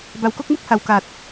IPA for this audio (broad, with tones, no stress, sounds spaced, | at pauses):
b a˨˩ w k o˥˩ k̚ m u˥˩ k̚ h a˨˩ w k a˨˩ t̚